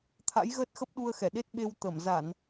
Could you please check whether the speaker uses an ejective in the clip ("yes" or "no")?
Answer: no